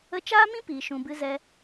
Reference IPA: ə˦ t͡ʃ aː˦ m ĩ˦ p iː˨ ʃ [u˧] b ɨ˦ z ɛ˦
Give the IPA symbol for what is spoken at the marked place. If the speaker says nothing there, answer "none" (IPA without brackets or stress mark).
ũ˧